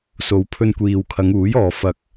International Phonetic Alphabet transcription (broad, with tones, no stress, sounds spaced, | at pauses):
s o˨ w pʰ ɵ˧ n kʷ iː˨ w kʰ ɐ˨˧ ŋ uː˨˥ j ɔː˨ f ɐ˨ k̚